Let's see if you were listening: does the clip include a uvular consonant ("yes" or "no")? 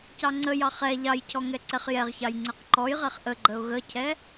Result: yes